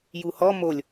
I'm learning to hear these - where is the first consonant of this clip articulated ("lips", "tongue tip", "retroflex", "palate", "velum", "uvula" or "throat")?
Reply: palate